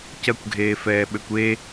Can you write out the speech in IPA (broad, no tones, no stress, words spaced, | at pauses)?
cɐkʷɡʱeːfɛːɓøkʷ e